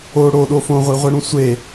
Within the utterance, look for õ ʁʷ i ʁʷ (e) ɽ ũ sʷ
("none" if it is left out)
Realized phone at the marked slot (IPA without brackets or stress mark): e